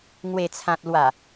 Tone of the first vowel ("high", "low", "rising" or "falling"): low